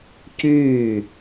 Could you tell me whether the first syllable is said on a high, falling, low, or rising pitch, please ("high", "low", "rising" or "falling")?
falling